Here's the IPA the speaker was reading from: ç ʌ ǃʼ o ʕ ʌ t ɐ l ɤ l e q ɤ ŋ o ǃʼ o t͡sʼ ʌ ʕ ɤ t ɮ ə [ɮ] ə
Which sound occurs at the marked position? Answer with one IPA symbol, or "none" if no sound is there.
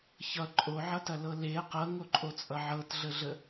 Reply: ɮ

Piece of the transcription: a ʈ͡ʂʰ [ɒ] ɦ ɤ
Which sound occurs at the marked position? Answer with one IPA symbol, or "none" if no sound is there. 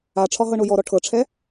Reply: ɒ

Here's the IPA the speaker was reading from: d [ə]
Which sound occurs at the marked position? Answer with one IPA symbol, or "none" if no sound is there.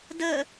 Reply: ə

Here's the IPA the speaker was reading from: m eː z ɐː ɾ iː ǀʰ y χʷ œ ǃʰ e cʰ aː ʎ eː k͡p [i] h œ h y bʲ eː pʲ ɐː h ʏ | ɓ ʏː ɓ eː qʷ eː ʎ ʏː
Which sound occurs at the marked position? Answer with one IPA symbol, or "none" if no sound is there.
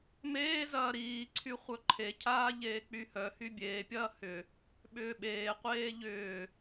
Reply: y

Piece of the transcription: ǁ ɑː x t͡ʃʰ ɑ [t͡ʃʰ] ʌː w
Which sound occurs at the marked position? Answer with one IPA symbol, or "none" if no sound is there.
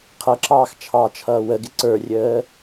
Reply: t͡ʃʰ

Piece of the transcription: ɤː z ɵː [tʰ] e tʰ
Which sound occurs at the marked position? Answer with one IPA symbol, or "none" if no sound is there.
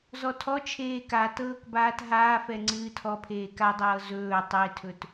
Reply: tˤ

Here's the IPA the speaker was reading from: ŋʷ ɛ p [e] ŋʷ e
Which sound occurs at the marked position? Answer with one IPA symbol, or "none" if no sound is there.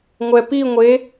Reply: i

